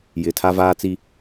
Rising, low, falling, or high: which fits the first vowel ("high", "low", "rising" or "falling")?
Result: low